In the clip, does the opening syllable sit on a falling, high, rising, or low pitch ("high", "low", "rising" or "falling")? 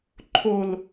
low